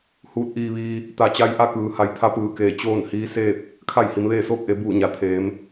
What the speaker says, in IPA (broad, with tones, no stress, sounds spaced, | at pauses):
h uː˧˥ t̚ ʔ iː˧ ʋ iː˧ | t̪ a˧˩ t͡ɕ a˧ j ʔ a˥˨ k ɯː˩ h a˩˧ j t̪ʰ a˧˥ p ɯː˧˩ k eː˧˩ t͡ɕ oː˥˨ n h iː˧˥ s eː˥˨ p̚ | kʰ a˥˨ j h i˩˧ m ʋ eː˥˨ s oː˥˨ k̚ ʔ e˩˧ b uː˧˩ ɲ a˩ t̪ʰ eː˩˧ m